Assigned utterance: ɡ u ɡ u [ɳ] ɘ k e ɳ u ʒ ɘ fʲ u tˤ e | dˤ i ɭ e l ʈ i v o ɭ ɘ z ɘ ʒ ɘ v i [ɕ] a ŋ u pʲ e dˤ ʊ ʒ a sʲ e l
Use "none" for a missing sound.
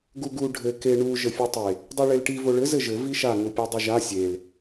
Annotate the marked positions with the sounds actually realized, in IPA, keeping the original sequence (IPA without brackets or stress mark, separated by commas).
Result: ɖʱ, ʃ